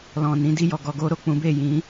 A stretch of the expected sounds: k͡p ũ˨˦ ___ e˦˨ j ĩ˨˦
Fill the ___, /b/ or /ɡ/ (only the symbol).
b